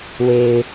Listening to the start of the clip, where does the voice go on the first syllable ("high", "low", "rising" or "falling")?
low